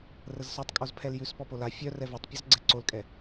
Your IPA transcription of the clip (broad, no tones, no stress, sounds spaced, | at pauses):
r ə z s œ tˤ kʼ o z pʰ ɛ l j ʉ s p ɔ p o l a fʲ œ r ɛ v œ tˤ pʲ ɔ z ɡ͡ǀ ɛ ǀ o l kʼ ɛ